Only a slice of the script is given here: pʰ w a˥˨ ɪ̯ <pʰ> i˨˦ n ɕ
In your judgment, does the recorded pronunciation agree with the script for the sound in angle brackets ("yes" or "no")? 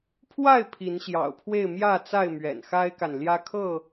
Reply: yes